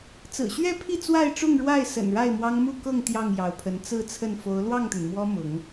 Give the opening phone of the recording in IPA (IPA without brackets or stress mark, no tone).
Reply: t͡s